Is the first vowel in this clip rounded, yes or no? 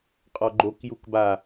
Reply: yes